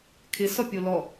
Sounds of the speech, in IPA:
kʰɪ sɔpʲolɔ

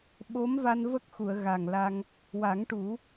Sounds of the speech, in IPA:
ɓo˧˥mva˧n və˦˥k̚xu˨˩˨ə̯ ɣa˨˩ŋla˧ŋ | wa˨˩˦ŋʈu˨˩˦

